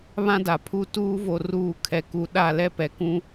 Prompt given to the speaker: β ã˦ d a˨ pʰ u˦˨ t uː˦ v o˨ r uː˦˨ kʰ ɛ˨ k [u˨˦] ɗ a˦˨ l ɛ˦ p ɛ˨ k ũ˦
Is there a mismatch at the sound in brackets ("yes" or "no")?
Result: no